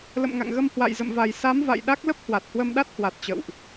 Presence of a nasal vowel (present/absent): absent